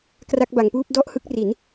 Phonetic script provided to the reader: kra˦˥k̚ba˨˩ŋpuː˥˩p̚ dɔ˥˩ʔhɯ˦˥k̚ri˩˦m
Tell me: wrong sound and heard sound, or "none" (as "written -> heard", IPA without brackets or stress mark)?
m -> n